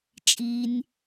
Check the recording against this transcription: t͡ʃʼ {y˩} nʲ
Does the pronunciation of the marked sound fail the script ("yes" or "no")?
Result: yes